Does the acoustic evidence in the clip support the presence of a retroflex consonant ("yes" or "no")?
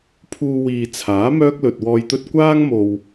no